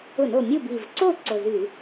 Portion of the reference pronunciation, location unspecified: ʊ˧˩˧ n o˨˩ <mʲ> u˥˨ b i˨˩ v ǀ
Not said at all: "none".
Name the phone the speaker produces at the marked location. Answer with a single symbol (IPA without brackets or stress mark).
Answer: mʲ